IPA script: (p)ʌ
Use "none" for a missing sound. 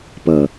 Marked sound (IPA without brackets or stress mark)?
p